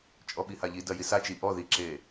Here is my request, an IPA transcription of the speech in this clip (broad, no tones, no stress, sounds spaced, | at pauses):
t͡ʃʼ ɔ ɓ i h a ʎ i d ɐ j i s a t͡ʃ i ʔ ɔ ð i ǁ e